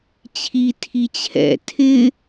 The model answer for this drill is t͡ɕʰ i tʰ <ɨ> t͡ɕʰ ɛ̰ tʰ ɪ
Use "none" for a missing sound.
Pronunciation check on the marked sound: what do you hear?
i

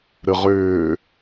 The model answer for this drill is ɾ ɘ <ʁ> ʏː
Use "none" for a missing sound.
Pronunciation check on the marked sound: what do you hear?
ʁ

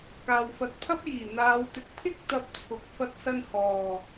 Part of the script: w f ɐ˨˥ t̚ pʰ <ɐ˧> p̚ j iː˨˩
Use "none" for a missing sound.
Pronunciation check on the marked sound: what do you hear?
ɐ˥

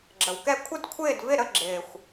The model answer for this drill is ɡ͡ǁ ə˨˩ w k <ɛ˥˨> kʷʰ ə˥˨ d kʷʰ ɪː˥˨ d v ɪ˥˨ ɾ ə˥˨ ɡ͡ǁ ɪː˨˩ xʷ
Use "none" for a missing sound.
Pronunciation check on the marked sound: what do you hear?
ɛ˥˨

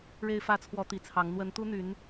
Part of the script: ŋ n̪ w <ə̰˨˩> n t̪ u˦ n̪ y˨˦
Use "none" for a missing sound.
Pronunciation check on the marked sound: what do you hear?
ə˨˦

